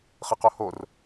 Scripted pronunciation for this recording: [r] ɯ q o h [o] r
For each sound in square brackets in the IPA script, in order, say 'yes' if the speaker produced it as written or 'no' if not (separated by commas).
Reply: no, yes